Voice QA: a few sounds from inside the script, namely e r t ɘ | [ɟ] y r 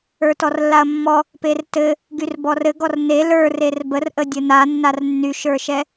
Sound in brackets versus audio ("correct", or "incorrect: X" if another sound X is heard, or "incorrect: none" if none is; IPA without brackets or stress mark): incorrect: ɡ